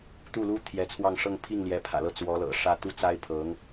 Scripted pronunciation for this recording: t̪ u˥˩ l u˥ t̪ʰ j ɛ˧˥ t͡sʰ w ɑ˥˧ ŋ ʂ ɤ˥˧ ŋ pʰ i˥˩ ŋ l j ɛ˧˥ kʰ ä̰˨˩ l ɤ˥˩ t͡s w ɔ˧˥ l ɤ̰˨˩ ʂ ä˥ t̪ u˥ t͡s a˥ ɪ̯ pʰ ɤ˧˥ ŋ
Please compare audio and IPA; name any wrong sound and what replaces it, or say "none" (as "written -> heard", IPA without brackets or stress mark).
kʰ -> pʰ